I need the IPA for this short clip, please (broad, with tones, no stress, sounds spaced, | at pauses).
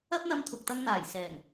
ɐ˥ p̚ n̪ ɐ˧ m t̪ʰ ʊ˨ k̚ t̪ ɐ˧ ŋ n̪ aː˨˩ j s ɛː˨˩ ŋ